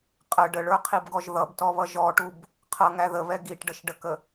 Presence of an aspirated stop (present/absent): present